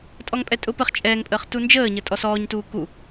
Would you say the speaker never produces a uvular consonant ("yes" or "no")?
no